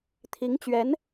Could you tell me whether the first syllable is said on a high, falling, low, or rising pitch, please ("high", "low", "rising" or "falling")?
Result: rising